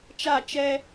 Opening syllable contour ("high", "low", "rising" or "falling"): falling